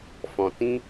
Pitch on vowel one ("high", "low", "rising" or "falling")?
low